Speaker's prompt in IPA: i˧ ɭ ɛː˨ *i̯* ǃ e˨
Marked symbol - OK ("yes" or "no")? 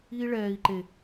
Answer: yes